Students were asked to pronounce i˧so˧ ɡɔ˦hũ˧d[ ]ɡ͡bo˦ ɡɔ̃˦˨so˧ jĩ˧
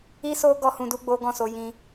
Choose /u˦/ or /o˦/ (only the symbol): u˦